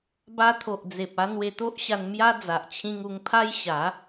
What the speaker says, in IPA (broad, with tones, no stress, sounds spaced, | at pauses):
b a˧ t̪ʰ o˨ ʔ d͡z e˨ p̚ a˧ n̪ w e˧ t̪ o˦ ʔ ɕ a˧ n m j a˦ d͡z a˨ ʔ t͡ɕʰ ĩ˧ ŋ u˧ ŋ pʰ a˦ j ɕ a˨˦